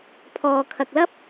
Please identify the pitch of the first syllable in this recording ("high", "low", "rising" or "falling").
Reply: low